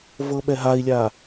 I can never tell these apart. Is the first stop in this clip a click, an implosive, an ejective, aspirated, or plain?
implosive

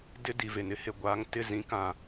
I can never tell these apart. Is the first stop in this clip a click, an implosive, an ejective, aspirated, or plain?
plain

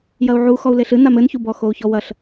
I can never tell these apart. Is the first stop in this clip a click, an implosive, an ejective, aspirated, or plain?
plain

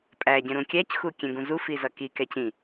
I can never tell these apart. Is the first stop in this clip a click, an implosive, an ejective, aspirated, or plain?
ejective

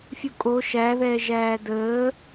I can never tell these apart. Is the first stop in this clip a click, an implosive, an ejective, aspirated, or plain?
ejective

